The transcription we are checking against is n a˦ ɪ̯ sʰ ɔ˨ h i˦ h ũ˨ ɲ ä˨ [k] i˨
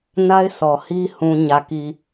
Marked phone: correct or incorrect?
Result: correct